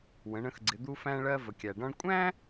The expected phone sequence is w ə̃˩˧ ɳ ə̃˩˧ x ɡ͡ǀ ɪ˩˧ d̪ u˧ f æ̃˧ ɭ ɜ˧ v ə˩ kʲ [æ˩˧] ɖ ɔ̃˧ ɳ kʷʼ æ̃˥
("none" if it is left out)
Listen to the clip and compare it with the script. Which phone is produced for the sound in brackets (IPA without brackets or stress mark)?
æ˩